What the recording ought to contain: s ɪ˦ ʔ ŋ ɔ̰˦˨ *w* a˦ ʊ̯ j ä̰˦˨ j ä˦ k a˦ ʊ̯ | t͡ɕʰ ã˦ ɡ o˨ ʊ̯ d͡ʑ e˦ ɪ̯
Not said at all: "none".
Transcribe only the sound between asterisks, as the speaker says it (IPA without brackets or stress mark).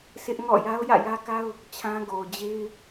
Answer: j